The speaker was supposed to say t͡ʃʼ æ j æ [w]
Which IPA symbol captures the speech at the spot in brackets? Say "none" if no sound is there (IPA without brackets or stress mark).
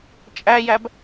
b